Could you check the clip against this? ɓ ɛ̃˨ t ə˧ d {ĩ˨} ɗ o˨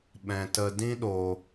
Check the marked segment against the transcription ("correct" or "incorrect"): incorrect